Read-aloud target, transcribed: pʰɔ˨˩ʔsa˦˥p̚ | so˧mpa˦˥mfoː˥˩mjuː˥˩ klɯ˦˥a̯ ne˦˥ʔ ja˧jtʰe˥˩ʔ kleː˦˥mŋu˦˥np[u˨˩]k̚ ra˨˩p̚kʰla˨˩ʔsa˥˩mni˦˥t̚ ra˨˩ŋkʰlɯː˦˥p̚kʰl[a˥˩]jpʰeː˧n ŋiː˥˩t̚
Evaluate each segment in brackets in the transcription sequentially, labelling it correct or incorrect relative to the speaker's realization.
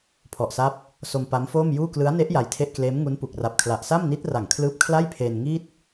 correct, correct

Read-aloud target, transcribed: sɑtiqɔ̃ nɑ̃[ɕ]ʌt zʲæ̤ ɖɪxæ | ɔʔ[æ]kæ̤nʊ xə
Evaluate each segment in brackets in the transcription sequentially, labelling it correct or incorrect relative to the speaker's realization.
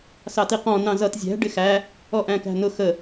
incorrect, incorrect

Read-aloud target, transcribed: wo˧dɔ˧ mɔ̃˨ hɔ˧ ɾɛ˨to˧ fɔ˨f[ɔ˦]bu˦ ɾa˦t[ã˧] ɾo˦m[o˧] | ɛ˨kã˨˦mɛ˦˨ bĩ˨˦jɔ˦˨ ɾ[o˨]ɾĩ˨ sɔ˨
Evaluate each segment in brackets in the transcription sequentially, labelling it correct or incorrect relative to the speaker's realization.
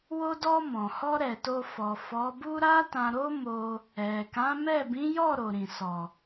incorrect, correct, correct, correct

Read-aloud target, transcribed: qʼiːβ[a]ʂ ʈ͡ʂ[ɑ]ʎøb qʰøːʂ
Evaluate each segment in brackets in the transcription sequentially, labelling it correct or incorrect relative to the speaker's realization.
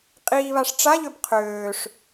correct, incorrect

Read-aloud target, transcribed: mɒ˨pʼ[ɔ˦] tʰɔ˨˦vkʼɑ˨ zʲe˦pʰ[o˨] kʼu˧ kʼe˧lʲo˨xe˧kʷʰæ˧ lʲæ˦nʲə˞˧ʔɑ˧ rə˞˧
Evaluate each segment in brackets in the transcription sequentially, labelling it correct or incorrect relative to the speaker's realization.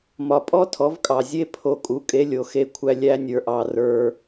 correct, incorrect

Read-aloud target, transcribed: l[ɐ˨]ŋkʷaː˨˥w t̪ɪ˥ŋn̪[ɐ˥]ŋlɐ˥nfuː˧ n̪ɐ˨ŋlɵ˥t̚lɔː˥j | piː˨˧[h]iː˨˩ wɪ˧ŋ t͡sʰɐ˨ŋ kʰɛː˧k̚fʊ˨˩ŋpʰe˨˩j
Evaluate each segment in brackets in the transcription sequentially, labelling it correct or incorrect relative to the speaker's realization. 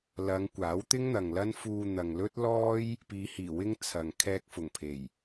incorrect, incorrect, correct

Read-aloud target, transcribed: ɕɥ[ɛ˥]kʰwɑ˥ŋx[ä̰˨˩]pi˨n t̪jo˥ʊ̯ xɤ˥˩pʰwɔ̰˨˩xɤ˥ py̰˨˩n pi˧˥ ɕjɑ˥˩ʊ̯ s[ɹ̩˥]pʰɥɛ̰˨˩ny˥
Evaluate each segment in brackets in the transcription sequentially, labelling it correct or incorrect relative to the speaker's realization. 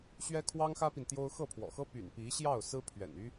correct, incorrect, correct

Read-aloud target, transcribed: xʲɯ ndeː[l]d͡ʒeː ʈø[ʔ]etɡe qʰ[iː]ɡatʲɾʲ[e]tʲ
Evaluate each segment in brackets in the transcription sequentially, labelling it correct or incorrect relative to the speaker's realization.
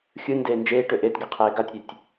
incorrect, correct, incorrect, incorrect

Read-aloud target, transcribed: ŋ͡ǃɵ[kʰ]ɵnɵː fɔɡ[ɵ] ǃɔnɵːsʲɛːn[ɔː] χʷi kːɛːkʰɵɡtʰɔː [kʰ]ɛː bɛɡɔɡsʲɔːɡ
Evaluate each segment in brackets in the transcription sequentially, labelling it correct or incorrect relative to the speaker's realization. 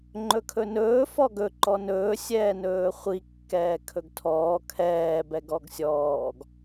correct, correct, incorrect, correct

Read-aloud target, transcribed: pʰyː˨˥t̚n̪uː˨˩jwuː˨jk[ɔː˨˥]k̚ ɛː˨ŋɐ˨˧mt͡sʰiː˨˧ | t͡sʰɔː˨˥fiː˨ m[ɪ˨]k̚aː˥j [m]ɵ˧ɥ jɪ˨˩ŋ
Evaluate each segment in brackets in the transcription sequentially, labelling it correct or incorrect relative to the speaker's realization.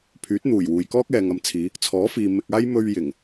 incorrect, incorrect, correct

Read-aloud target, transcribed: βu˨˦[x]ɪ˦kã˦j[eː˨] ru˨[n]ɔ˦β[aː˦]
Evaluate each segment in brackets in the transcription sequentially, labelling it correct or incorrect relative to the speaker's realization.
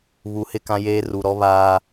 incorrect, incorrect, incorrect, correct

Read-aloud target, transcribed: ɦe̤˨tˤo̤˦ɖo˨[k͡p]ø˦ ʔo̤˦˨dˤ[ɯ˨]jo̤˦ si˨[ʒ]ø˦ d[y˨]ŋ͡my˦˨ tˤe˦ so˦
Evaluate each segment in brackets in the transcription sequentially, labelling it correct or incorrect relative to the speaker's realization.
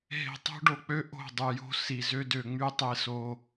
correct, correct, incorrect, incorrect

